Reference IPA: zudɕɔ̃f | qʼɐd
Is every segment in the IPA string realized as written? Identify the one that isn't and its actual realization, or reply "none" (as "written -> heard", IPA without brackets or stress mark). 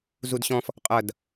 none